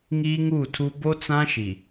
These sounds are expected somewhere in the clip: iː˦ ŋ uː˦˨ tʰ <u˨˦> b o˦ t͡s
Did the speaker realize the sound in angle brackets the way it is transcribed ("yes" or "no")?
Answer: no